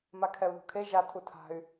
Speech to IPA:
makʰɛu̯ðṳkʰe ʒa tʰutʰa̤y̯

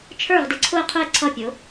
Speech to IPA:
t͡ʃʰə˞˥˩ʁdɪ˩˥ǀʰʊ˥˩ə̯qʰʊ˥˩ə̯ ǀʰʌ˥˩pʲʊ˩˥

